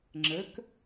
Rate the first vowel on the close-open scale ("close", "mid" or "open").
mid